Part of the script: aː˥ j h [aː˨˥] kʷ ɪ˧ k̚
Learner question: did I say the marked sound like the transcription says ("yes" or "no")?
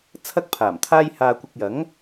no